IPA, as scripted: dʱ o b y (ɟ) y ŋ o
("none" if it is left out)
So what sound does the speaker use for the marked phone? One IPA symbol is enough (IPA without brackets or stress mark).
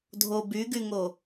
ɡ